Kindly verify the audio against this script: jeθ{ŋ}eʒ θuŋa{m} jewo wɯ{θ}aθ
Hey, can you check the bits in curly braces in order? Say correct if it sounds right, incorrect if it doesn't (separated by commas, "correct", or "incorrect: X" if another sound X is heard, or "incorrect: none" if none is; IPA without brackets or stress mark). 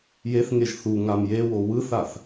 correct, correct, correct